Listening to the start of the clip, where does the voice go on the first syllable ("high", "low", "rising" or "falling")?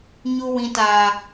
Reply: high